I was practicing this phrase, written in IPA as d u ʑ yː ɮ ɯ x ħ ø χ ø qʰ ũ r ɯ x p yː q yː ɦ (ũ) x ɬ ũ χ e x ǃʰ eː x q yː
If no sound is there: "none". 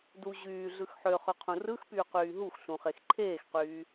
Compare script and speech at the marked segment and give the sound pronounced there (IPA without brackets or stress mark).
u